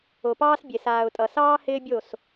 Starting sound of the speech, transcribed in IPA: o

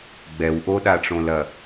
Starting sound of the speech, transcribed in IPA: ɡ͡b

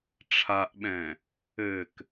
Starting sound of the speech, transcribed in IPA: ʈ͡ʂʰ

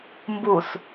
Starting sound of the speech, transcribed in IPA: m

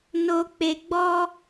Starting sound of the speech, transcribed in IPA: n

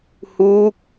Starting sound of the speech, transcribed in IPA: h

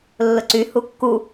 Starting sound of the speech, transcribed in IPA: lː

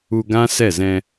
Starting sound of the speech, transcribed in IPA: u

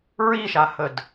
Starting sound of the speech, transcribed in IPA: ɹ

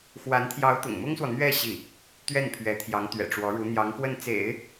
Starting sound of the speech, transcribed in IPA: x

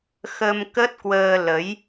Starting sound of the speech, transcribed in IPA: x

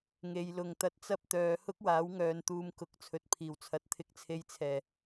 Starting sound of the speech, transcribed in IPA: ŋ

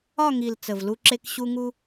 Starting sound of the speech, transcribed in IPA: ɒ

